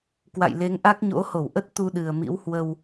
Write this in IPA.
k w a̰˧˨ j l e˨˦ ŋ ʔ a˦˥ k̚ ɲ o̰˧˥ h o˧˩ w ʔ ə˦˥ t̚ t̪ u˧ ɗ ɨ˨˩ ə̯ m ḭ˧˥ w h w ə˧ w

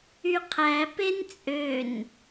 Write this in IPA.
y qʰ æ p e n t͡sʼ ø n

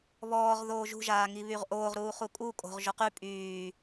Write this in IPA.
β ɔː ʁ ð oː ʒ ṳ ʒ aː ŋ i β y ʁ ʔ oː ʁ ɾ uː χ u kʼ u kʼ o̤ ʁ ʒ o q y pʼ yː

